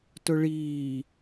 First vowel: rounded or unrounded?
rounded